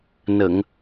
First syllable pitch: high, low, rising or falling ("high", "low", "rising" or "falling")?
low